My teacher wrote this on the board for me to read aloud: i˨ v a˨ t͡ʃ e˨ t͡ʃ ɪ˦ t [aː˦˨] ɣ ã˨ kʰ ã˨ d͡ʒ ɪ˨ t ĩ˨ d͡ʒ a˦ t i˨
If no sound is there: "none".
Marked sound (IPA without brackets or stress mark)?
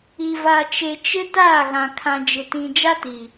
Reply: aː˦˨